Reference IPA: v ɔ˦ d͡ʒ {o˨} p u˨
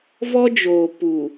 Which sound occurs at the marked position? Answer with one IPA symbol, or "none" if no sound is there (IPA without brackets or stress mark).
oː˨